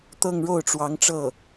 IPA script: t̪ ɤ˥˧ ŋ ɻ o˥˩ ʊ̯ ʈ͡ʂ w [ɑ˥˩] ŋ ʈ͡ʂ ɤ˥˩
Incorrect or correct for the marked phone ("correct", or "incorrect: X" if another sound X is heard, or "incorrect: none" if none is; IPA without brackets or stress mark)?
incorrect: ɑ˧˥